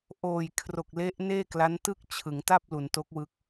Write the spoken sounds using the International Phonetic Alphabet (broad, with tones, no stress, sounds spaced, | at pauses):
ʔ oː˨˩ j kʰ r o˨˩ k̚ l e˦˥ ʔ n eː˥˩ k l a˦˥ n t ɯ˥˩ k̚ t͡ɕʰ ɯ˩˦ ŋ t a˥˩ p̚ l u˩˦ n t o˦˥ k̚ w ɯ˦˥ k̚